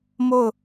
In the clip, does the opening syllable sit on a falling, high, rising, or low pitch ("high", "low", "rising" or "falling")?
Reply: falling